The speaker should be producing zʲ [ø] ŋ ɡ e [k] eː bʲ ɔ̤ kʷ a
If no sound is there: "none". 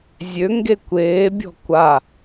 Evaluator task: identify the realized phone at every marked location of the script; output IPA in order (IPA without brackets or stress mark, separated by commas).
ø, kʷ